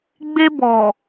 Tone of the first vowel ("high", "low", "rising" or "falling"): high